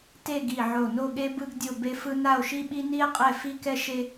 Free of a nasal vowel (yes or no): yes